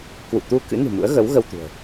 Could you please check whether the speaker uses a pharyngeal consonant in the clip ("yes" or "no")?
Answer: no